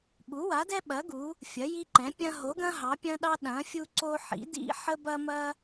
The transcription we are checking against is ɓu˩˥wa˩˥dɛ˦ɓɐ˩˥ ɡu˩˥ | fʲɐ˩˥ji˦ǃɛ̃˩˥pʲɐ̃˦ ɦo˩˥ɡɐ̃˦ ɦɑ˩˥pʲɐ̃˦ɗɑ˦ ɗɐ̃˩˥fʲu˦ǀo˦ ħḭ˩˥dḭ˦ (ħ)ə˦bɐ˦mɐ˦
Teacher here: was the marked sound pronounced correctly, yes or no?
yes